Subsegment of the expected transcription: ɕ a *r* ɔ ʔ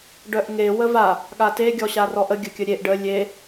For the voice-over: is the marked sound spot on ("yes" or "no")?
yes